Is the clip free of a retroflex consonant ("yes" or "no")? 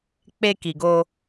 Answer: yes